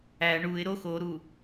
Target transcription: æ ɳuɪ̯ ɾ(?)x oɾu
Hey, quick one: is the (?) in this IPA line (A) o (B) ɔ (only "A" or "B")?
A